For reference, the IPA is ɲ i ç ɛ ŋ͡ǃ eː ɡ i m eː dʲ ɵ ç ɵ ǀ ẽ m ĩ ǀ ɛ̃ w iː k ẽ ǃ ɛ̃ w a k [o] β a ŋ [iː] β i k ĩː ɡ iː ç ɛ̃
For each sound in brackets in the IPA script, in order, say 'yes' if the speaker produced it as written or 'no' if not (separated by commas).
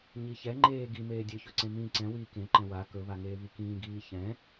no, no